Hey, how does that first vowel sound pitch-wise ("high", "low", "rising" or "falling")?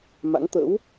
rising